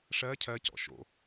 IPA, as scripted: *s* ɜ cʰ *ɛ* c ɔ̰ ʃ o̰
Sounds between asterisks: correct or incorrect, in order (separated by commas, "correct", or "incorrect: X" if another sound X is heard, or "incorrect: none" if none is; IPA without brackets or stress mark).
incorrect: ʂ, incorrect: ɜ